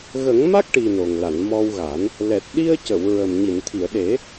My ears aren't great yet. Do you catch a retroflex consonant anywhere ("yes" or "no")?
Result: yes